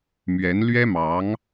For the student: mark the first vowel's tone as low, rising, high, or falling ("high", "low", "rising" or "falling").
rising